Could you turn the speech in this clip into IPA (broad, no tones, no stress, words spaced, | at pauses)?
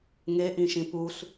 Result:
ŋeʔĩʃĩ pus